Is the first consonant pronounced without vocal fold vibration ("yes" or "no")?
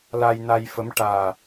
no